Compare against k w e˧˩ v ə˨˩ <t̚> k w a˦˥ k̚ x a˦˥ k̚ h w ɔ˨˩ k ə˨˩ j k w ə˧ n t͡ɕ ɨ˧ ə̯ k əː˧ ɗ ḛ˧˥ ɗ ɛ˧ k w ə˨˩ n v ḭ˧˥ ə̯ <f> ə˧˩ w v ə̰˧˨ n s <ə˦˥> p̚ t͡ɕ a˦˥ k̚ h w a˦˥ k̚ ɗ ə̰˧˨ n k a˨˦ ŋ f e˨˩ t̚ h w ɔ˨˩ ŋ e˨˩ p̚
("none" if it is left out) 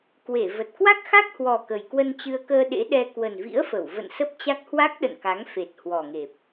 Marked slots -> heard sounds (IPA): t̚, f, ə˦˥

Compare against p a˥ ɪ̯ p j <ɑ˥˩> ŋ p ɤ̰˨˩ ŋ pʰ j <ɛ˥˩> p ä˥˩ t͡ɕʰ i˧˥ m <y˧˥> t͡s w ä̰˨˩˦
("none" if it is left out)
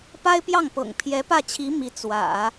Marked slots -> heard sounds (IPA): ɑ˥˩, ɛ˧˥, i˧˥

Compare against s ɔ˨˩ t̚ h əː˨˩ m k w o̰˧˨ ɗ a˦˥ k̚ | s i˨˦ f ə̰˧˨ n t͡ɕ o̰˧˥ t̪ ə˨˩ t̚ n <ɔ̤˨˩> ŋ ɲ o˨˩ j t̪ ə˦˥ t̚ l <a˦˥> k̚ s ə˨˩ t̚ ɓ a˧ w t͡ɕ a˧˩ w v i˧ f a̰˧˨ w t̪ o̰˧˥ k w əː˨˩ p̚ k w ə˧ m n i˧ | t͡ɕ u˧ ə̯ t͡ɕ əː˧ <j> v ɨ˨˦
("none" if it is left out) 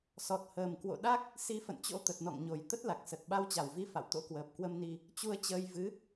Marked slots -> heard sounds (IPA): ɔ̰˧˨, a˨˩, j

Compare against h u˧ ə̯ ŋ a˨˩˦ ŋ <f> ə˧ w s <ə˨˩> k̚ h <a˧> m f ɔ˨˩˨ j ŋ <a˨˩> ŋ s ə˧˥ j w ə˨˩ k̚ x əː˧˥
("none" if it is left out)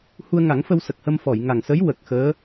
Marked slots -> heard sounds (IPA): f, ə˨˩, ə˧, a˨˩

